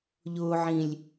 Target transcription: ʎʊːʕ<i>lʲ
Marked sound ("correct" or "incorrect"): incorrect